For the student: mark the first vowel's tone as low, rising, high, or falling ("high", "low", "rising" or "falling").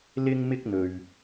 high